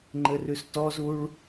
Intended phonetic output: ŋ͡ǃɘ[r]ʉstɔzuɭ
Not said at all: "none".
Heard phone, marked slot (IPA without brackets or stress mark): r